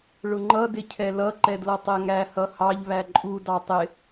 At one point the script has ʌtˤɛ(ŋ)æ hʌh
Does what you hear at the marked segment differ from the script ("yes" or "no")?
no